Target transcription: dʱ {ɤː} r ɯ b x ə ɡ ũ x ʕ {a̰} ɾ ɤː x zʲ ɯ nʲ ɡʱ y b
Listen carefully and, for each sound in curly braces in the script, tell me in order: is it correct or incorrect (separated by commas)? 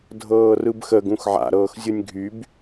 correct, correct